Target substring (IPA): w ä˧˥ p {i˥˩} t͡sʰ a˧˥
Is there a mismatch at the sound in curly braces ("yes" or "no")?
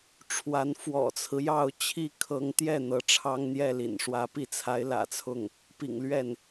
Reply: no